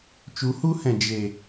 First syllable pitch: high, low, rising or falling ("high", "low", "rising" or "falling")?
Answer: rising